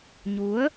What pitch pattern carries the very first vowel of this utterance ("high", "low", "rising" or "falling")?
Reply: rising